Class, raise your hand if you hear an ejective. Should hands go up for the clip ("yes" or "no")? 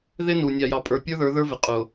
yes